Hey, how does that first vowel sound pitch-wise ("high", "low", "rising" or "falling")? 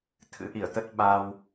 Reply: rising